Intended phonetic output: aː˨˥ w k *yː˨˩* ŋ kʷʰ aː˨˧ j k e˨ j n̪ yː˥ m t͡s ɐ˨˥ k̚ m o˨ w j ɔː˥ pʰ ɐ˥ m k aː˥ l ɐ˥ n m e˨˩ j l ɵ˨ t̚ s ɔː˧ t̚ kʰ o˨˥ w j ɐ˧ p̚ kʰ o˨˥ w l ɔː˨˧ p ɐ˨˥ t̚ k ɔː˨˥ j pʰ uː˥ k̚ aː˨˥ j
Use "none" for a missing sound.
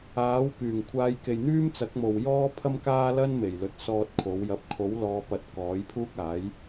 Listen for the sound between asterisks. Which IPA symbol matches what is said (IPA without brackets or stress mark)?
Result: yː˨˩